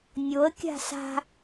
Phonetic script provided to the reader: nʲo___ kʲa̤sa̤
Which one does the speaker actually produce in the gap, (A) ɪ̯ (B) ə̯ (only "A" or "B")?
B